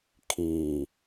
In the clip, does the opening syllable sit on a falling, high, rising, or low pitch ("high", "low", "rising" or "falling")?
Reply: low